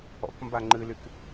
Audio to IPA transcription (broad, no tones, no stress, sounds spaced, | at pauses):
ɔ̰ k m b a ŋ͡ǃ ɨ l y k